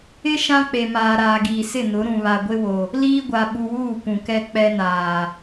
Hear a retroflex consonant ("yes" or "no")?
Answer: no